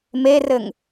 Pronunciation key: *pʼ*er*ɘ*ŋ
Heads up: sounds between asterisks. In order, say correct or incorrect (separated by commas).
incorrect, correct